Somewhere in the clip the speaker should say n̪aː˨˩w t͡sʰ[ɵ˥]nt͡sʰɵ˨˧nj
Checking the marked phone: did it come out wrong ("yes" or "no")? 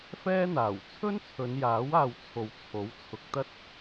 no